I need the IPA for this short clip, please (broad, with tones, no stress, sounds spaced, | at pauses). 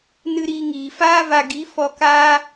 n ɨ˧ ɾ iː˧ ŋ iː˨ f aː˦ v a˧ ɡ i˨˦ f ɔ˧ k aː˦